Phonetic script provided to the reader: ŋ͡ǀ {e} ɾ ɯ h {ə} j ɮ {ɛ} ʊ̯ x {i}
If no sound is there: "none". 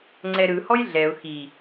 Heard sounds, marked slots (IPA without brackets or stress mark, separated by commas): ɛ, ɔ, ɛ, i